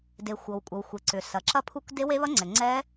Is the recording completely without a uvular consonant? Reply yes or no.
yes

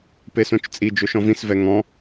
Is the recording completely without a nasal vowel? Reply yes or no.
no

